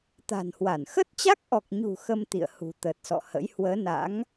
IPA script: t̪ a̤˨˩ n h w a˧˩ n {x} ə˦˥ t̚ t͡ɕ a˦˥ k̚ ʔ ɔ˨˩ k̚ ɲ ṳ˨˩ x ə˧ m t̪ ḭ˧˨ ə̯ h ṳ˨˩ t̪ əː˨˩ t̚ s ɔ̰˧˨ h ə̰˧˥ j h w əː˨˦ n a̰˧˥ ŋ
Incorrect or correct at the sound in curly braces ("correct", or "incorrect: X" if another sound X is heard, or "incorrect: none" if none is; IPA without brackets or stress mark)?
correct